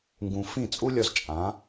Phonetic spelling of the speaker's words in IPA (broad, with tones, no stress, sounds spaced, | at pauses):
ŋ ɡ ũ˨ f ĩ˦˨ t͡sʼ u˦ lʲ ɔ˧ z t͡ʃʼ ã˨˦